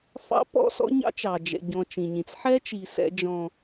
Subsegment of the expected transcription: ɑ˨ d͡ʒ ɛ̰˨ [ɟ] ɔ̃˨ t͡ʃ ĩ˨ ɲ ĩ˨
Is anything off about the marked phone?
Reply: no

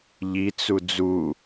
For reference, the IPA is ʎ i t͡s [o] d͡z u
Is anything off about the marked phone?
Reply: yes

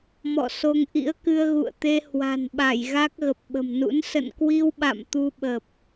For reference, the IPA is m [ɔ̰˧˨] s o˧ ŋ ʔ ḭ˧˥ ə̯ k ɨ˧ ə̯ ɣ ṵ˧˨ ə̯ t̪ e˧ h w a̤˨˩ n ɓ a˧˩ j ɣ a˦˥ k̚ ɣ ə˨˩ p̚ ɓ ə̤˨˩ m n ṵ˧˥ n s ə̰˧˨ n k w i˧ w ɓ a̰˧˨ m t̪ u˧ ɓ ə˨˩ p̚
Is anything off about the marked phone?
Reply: no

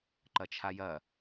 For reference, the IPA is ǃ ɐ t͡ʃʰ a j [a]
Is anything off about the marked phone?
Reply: yes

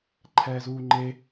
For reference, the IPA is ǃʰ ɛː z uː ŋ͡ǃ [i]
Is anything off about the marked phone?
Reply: yes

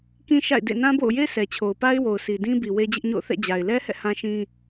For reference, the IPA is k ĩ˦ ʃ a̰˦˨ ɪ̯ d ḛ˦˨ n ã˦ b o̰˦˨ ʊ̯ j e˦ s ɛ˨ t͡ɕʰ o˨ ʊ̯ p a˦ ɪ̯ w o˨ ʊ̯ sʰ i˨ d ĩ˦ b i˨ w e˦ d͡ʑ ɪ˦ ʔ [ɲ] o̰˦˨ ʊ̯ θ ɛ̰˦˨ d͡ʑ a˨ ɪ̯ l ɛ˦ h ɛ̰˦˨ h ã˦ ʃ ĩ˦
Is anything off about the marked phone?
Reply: no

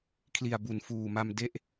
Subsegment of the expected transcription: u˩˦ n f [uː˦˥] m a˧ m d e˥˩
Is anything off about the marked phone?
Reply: yes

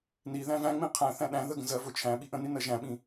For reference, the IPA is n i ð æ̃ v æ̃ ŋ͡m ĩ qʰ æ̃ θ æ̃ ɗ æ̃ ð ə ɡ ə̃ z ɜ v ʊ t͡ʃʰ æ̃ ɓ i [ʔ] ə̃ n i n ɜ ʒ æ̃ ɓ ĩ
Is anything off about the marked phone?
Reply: no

